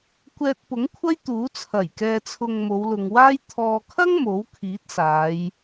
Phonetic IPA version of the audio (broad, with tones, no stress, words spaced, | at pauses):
kʷɛː˧t̚ pʊ˨˥ŋkʷʰɐ˥j t̪uː˨˥t͡sʰɐ˨˩jkɛː˧t͡sʰʊ˧ŋ mo˨˧wlʊ˨ŋwaː˥j t̪ʰɔː˨kʰɐ˥ŋ mo˨˥wkʰiː˨˥t̚saː˨˧j